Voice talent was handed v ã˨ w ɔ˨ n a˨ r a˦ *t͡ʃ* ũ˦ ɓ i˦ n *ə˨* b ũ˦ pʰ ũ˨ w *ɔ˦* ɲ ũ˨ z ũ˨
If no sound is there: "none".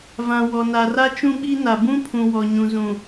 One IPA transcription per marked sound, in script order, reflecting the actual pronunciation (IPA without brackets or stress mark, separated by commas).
t͡ʃ, a˨, ɔ˨